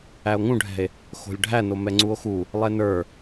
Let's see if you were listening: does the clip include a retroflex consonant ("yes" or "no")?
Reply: yes